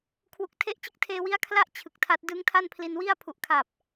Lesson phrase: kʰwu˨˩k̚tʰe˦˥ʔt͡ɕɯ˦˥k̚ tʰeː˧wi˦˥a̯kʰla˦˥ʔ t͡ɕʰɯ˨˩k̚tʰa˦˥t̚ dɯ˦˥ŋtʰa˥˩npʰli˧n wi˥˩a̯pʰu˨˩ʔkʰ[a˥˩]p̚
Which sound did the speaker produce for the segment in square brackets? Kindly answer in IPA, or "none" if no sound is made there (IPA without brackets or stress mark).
a˨˩